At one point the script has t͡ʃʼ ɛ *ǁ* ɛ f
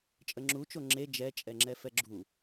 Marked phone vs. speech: incorrect: ŋ͡ǁ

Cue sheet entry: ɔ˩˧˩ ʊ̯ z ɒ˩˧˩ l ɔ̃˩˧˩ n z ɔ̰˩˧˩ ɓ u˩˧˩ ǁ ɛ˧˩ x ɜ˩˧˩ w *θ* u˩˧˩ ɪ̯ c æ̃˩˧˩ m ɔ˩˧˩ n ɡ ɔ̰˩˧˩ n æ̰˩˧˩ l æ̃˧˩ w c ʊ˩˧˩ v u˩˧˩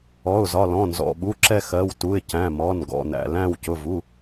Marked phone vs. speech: incorrect: t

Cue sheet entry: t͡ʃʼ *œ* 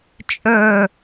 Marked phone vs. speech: correct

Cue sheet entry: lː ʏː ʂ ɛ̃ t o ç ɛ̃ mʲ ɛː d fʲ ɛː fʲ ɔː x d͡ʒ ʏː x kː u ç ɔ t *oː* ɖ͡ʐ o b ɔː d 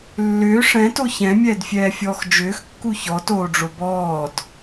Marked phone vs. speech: correct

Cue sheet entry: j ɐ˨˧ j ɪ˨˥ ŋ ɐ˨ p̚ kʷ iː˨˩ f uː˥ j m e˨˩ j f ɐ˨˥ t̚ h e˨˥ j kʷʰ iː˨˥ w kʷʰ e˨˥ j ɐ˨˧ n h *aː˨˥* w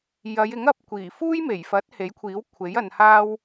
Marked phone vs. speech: incorrect: aː˥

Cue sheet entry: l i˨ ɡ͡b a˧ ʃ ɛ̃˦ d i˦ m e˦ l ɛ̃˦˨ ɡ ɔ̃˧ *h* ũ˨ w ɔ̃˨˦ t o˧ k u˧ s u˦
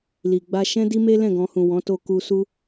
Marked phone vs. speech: correct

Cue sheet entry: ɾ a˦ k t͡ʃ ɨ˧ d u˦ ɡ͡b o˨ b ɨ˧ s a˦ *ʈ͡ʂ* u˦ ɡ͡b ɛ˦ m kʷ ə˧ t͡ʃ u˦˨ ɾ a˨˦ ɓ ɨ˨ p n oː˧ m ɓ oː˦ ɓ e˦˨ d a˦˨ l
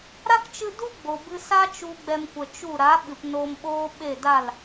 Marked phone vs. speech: incorrect: t͡ʃ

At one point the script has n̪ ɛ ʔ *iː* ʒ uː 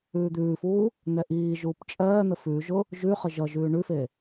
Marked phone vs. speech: correct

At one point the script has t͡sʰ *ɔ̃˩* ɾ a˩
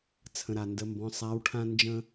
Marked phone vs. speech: incorrect: ə̃˩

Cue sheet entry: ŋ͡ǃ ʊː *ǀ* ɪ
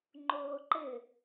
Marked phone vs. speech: incorrect: ǃ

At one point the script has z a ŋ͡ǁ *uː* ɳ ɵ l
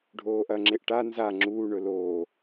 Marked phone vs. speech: correct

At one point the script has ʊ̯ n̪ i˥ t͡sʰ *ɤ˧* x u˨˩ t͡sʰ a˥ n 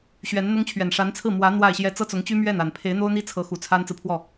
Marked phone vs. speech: incorrect: ɤ˧˥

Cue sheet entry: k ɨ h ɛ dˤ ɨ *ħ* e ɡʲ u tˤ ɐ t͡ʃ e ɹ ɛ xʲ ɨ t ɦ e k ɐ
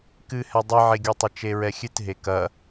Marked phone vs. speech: incorrect: ʕ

